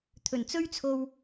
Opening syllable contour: low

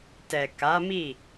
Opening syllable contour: low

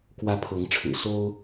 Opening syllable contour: high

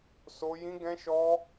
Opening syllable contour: high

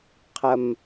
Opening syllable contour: low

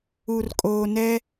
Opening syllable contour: low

